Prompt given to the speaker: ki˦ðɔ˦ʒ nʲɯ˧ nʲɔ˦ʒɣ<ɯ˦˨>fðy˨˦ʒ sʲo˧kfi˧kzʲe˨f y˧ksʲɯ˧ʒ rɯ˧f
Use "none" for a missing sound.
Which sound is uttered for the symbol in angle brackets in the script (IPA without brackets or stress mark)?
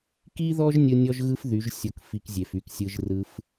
ɯ˦